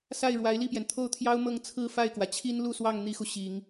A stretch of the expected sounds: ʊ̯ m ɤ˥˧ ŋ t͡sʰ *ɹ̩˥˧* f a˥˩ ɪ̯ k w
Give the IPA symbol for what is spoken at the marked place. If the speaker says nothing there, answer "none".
ɹ̩˥˧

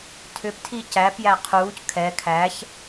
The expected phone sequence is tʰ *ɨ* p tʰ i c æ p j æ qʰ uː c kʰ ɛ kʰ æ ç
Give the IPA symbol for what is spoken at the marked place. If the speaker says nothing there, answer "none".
ʏ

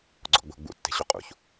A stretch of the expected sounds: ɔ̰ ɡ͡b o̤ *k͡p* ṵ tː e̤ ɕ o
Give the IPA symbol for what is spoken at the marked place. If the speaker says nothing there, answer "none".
ɡ͡b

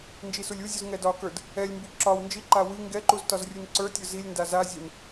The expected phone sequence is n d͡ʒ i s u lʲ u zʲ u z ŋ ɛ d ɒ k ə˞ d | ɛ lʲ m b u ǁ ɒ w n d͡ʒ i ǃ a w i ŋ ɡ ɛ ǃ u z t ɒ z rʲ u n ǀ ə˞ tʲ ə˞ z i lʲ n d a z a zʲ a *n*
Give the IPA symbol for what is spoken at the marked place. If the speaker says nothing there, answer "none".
n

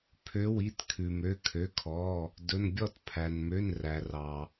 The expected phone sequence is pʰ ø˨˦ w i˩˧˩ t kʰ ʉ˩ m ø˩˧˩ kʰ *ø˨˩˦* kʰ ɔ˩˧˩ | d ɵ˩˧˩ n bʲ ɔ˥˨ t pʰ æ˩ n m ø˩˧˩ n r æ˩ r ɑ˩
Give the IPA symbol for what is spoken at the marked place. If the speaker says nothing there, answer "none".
ø˩˧˩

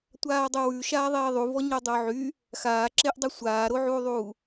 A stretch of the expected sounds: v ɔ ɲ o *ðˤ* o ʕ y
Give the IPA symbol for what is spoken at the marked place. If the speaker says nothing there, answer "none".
dˤ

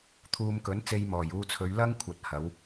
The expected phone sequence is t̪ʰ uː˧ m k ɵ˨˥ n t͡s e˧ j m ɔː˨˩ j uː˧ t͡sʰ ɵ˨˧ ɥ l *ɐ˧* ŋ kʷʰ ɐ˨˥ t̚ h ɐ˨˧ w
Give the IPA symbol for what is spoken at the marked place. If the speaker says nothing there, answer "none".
ɐ˥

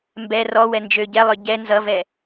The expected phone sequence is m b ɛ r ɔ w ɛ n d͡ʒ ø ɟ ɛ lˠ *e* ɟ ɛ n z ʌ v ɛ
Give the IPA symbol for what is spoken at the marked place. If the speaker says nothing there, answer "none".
ø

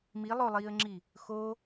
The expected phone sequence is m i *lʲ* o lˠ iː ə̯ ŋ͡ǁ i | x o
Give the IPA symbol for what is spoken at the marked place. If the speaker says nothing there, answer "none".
lˠ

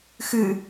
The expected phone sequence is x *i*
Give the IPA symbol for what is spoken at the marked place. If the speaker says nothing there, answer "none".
ɨ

